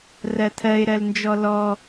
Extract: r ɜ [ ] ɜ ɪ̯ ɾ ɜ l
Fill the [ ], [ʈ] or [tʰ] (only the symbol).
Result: tʰ